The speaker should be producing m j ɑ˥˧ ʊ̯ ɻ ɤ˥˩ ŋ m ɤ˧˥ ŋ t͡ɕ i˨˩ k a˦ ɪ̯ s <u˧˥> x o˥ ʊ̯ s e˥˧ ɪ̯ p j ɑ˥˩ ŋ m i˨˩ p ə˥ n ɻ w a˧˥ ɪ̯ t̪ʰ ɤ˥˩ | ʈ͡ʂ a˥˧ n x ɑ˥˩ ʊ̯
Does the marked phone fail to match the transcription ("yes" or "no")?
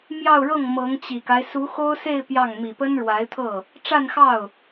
no